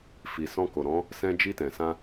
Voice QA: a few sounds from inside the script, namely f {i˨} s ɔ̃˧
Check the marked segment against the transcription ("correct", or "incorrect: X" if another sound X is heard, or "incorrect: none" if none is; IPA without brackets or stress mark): correct